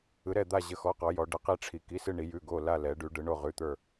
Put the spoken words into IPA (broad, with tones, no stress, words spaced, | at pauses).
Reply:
ɯ˩˧ɾɛ˧˩d̪a˧˩ ʑə˩˧˩xɔ˩˧˩qɔ˩˧jɔ˩˧ ɖə˩˧qi˧˩ʈ͡ʂʰi˩˧ ki˩˧˩sɨ˧˩ɳi˩˧jʉ˩˧˩ ɡo˧˩ la˧˩lɛ˩˧ɖʉ˩˧ ɖɯ˩˧ɳo˧˩ʁʉ˩˧˩t̪ə˞˧˩